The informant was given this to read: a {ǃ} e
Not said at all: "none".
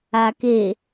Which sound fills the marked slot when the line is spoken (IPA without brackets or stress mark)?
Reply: k